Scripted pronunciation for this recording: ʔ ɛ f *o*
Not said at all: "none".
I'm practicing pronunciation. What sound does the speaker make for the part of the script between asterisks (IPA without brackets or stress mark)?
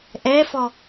ɔ